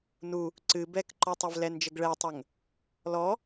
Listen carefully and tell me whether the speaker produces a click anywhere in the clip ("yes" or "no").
yes